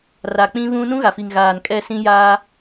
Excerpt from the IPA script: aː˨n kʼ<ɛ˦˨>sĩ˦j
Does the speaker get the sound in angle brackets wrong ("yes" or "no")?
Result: no